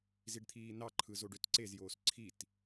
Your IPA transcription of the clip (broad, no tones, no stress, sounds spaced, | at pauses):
z i ɖ t̪ʰ iː n ɑ ǃʰ ɯ z o ɖ ø t ǀ e z j oː s ǀʰ i t